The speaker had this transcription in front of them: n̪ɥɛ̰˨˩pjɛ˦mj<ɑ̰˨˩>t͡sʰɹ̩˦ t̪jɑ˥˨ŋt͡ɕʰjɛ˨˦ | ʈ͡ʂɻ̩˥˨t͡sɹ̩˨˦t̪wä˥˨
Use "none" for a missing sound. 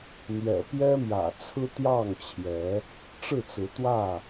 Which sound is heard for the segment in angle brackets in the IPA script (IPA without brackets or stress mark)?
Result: ä̰˨˩